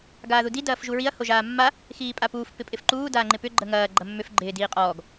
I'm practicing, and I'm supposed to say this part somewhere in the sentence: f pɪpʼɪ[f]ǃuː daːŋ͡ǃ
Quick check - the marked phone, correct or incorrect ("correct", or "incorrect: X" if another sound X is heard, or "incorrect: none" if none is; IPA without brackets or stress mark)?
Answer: correct